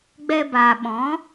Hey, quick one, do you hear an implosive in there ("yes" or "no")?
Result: yes